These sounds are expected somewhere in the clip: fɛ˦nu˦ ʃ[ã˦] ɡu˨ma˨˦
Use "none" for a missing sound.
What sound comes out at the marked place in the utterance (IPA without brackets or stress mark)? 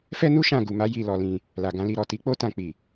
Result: ã˦˨